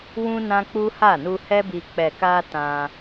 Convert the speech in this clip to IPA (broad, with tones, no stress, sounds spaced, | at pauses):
w ũ˦ n ã˦ k͡p u˦ h a˦˨ n u˧ h ɛ˦ b i˧ k͡p ɛ˨ k a˧ t ã˧